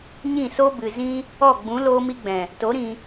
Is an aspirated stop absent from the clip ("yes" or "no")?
yes